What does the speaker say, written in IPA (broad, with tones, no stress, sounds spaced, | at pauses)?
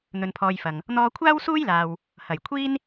n̪ ɵ˧ n pʰ ɔː˧ j f ɐ˨ ŋ | n̪ ɔː˧ kʷʰ aː˥ w s uː˥ j l aː˨ w | h ɐ˨˩ j kʷʰ iː˥ n